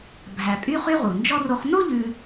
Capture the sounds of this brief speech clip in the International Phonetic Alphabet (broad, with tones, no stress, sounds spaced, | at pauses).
bʱ æ˨ pʼ y˦ χ y˦ ʁ u˩ n d͡ʒ ɔ˥ r o˦ χ n o˥ ʎ ʉ˨